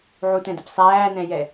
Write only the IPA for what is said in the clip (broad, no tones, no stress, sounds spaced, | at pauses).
ʕ u t ɛ̃ d ɪ p sˤ æː n ɛ̃ j ɛ